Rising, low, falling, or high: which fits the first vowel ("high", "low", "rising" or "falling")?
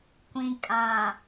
low